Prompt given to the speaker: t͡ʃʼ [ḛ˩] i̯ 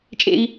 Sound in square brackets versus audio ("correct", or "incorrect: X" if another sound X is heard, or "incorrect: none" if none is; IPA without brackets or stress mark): correct